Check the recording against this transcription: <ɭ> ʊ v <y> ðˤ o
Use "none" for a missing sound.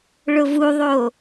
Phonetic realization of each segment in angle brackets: ɭ, u

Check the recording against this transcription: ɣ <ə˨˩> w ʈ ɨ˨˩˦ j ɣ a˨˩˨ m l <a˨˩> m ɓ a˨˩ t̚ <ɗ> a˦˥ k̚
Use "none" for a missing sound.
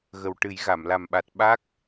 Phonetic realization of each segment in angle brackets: ə˨˩, a˨˩, ɓ

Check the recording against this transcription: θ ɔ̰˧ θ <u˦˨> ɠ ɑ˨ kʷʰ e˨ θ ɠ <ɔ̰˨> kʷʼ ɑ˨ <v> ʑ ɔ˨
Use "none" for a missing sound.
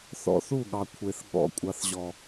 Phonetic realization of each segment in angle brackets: u˦˨, ɔ̰˨, θ

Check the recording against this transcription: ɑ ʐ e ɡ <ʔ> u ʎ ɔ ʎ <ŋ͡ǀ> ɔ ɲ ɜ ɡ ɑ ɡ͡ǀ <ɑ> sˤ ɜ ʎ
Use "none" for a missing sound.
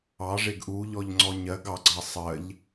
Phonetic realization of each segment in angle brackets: ʔ, ŋ͡ǀ, ɑ

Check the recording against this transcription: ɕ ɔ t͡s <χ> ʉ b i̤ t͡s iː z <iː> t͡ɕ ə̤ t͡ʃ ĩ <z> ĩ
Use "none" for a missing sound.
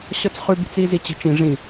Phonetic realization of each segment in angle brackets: χ, i, ʐ

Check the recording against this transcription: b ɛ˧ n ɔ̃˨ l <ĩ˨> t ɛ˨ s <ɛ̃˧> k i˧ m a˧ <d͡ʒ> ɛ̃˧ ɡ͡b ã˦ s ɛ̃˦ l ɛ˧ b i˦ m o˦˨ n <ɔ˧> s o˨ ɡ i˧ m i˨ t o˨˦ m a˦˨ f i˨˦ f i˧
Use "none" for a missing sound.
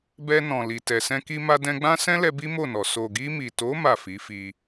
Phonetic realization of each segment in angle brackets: i˨, ɛ̃˧, d, ɔ˨

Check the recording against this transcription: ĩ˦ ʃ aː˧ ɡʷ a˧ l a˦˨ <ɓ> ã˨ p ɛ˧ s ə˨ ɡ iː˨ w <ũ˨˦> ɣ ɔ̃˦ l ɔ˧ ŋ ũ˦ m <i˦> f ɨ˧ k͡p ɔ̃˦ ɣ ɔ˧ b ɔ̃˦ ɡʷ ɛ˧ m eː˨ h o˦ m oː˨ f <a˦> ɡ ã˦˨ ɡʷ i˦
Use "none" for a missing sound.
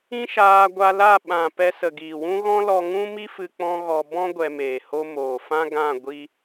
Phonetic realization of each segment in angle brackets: ɓ, ũ˦, i˦, ã˦

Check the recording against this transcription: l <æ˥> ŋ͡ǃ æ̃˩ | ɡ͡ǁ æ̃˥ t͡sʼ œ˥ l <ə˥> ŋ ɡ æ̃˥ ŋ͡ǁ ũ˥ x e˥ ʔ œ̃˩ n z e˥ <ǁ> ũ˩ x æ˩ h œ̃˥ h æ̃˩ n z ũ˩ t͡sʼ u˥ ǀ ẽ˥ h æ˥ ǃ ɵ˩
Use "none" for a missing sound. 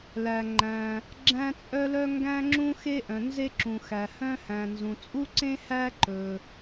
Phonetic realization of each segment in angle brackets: æ˩, œ˥, ǁ

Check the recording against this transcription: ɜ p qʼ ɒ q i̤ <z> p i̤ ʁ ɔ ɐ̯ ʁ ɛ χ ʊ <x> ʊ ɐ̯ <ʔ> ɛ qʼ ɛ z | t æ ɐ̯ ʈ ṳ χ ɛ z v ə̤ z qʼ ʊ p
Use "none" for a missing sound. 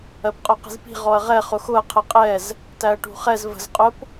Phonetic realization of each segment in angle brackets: z, x, qʰ

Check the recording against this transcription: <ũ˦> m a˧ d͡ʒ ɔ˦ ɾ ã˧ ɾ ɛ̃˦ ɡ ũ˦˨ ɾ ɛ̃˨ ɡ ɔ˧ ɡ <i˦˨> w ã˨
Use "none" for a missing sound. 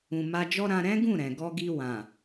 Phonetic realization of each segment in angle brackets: ũ˨, i˧

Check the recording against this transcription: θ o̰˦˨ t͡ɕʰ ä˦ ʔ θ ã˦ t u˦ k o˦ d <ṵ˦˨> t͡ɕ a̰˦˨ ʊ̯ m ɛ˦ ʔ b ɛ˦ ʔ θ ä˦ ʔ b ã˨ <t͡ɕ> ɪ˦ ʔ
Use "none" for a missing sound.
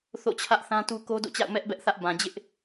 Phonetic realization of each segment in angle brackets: o̰˦˨, d͡ʑ

